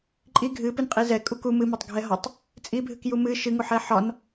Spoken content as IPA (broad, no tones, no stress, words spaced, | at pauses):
ǃʼi ɡʱɨpɨnqʼi zɛkʼu ku mɨmɒtˤɡʱɛ ɦɒtˤ | t͡sʼibʱɨkju mɨ ʃɨŋuħɛ ħɒn